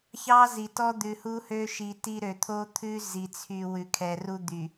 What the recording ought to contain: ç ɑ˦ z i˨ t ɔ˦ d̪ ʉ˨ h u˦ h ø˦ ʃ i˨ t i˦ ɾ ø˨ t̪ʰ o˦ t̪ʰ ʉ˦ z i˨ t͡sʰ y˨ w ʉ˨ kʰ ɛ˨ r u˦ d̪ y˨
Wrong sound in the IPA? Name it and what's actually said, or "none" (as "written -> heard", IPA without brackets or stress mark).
none